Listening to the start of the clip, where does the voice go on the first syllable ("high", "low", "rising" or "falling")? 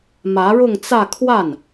rising